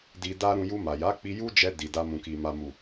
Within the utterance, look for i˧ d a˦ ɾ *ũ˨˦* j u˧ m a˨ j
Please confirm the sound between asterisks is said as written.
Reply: no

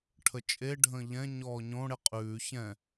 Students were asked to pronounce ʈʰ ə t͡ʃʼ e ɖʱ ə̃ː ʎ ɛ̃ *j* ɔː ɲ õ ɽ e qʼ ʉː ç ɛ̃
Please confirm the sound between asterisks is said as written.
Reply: no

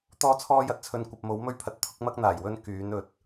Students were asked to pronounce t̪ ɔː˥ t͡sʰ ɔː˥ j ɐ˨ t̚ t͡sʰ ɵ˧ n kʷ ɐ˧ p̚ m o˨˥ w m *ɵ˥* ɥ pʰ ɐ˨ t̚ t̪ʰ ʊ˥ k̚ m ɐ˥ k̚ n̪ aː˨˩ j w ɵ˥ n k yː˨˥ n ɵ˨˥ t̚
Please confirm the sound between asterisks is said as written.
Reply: yes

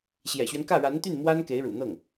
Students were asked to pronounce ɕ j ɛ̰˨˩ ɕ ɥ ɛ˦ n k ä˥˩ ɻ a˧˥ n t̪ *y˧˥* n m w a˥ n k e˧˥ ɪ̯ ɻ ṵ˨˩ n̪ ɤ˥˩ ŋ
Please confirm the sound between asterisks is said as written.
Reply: no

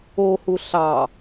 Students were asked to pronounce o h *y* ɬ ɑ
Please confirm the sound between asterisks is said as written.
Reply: no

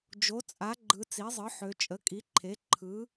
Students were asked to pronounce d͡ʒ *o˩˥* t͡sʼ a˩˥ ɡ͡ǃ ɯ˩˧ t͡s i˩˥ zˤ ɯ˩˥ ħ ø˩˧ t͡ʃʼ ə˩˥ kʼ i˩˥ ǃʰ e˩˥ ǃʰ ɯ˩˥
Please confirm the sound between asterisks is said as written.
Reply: yes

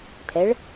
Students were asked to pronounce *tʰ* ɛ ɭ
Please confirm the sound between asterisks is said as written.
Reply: yes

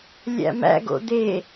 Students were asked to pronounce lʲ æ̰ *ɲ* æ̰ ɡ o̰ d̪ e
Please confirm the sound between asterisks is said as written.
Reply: no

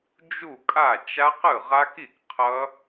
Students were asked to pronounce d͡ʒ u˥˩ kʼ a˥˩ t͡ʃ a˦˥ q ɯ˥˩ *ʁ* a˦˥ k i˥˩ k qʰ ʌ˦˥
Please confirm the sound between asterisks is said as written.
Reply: yes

